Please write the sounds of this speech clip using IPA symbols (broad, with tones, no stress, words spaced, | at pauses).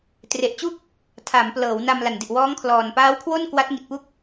tre˨˩ʔt͡ɕu˥˩k̚ | tʰa˩˦mplɤː˩˦w na˧m la˨˩ndi˨˩ʔ wɔː˦˥ŋkʰlɔː˨˩n paː˦˥wkʰwo˥˩n kwa˦˥t̚ŋi˨˩t̚pu˥˩k̚